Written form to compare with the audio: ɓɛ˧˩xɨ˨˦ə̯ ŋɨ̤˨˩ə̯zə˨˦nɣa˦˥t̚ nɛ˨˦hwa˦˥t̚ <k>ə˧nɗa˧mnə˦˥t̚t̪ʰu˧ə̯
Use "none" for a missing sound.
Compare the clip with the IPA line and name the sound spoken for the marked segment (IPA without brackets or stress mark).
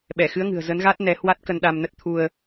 k